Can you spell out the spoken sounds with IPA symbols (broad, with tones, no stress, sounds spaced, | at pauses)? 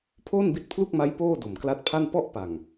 pʰ oː˥˩ n b i˦˥ t̚ pʰ l u˥˩ k̚ m a˦˥ j p oː˥˩ d o˨˩ m k l a˦˥ t̚ pʰ a˥˩ n p ɔ˥˩ ʔ p a˨˩ ŋ